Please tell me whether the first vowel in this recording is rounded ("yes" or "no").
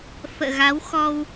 no